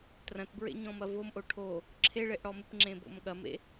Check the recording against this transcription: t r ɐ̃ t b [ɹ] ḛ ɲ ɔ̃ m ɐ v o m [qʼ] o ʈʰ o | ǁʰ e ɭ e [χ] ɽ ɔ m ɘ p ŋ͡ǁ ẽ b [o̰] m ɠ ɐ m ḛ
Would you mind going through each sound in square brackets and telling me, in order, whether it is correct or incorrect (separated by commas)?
correct, incorrect, incorrect, correct